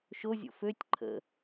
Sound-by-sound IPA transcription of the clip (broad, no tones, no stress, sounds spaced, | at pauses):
ʃ o zʲ o̰ f ø tʲ ǃʰ ə̰